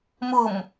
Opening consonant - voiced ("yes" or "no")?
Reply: yes